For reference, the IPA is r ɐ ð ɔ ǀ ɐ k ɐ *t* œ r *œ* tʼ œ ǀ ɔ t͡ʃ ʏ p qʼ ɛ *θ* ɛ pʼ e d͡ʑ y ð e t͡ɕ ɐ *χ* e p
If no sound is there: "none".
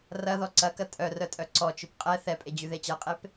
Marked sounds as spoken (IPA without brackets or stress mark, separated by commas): tʼ, œ, θ, qʼ